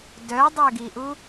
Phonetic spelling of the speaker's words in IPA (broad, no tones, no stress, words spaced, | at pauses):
dœdˤøɡiʔu